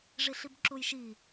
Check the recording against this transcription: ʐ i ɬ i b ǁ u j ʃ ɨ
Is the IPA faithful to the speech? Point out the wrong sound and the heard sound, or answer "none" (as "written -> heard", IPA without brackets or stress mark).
ɨ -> i